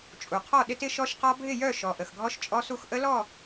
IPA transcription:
t͡ʃʼ u˩ qʰ ɔ˥˨ ɗ ɪ˦˥ t ɪ˦˥ ʃ ɔ˦˥ ʃ q ɔ˦˥ bʱ ɪ˥˨ j œ˥˨ ʃ ɔ˩ ʔ ə˩ x ɡʱ ɔ˦˥ ʃ t͡ʃʼ ɔ˦˥ s u˥˨ x ʔ ə˦˥ l ɔ˥˨

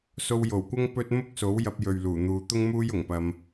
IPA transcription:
s o˧ w j o˨˩ w kʷ ɐ˥ ŋ p ɵ˥ t̚ m ʊ˥ k̚ s o˨˥ w j ɐ˧ p̚ j ɵ˨ ɥ l uː˨˩ n̪ uː˨˧ t̪ ʊ˥ ŋ m uː˥ j ʊ˨˩ ŋ p ɐ˧ m

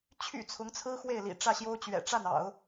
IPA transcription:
t͡ɕʰ y̰˨˩ t͡sʰ ʊ˧˥ ŋ t͡sʰ ɹ̩˥ x w e˥˩ ɪ̯ l ḭ˨˩ ʈ͡ʂ ä˥˩ ɕ j o˥ ʊ̯ t͡ɕ ɥ ɛ̰˨˩ ʈ͡ʂ a˥˩ n ɑ̰˨˩˦ ʊ̯

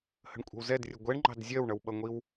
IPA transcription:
h ə̤ ɳ kʷʼ ə̤ w z ɛ d rʲ ə ɡʷ ɛ ɳ ŋ͡ǃ ɑ̤ d zʲ ɜ w ɳ ʌ w ɓ ʌ ŋʷ i w

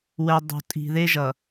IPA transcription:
w ɛ˨ dˤ o̤˨ tʼ i̤˨ ð e˦ ʒ ʌ˨

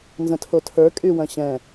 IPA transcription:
n z ə̃ tʰ o tʰ ə˞ kʼ y w ɐ̃ ɕ ɛ̃

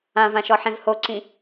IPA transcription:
ã v ã ʃ ɔ ħ ẽ v h o ǀ ĩ

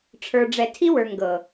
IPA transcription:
ʈ͡ʂʰ ə˞˨ ɖ͡ʐ ɛ˨ tʰ i˦ w ə˞˨ ŋ ɡ ɤ˨

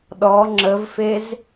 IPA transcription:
ɗ ɔ ŋ͡ǁ ə v f e z

